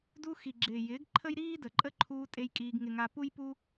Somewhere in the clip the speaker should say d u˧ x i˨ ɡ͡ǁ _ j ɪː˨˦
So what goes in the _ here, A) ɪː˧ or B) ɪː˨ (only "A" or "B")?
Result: B